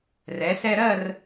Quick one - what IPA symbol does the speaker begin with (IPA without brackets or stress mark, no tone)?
r